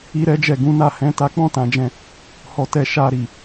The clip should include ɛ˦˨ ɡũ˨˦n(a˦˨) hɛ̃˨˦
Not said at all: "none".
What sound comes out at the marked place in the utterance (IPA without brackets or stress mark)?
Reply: a˦˨